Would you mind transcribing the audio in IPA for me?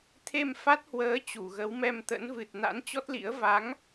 t̪ʰ e˧ m f a˦˥ t̚ h w əː˨˦ t͡ɕ u˧˩ ɣ ə˨˦ w m ɛ˧ m t̪ ə̰˧˥ n v ɨ˨˩ t̚ n a̰˧˥ n t͡ɕ ɔ˦˥ t̚ l ḭ˧˥ ə̯ v a˨˦ ŋ

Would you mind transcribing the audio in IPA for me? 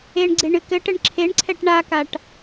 e ɳ ɡ͡ǀ e ɳ ɨ k ɘ ʈ ɘ ɳ ǁʰ e ɳ ǀʰ ɛ ʈ ɳ a k a ʈ

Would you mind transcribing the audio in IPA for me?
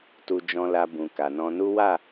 t u˧ d͡ʒ ɔ̃˧ l a˧ b ũ˨ k a˨ n ɔ̃˧ n u˦ w a˦˨

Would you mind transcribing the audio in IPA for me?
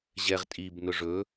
ʑ ɛ ʁ tʼ i b n ʊ ʐ ɵ

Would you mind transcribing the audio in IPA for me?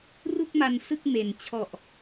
r u˥˩ k̚ m a˧ n s ɯ˥˩ k̚ m e˨˩ n t͡ɕʰ ɔ˨˩ ʔ

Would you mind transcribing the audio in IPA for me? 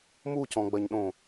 m u c ɔ̃ ɡ͡b ɐ ɲ ɗ õ

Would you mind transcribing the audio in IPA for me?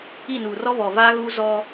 i˦˨ n uː˨ r ɔ˦ β ɔ˨ v aː˦ ɣ uː˦ z ɔ˦

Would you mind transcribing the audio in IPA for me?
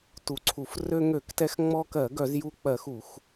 t u˧˩˧ ǀʰ u˧˩˧ f r ø˧ ŋ ø˧˩˧ k t ɛ˧ x ŋ͡m ɔ˧ k ɜ˧˩˧ ɡ œ˧˩˧ z j u˧ k͡p ɜ˧˩˧ x u˧˩˧ x

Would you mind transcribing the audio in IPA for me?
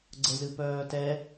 ɡ͡ǀ ə z ɨ p œː t ɛ

